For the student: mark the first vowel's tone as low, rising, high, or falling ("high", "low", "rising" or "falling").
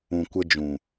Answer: low